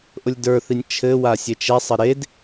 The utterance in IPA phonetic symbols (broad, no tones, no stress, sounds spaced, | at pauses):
ʔ ʊ lʲ d ə˞ θ i nʲ t͡ʃʰ ɘ w a sʲ e t͡ʃ ɛ sˤ ɘ ɾ e d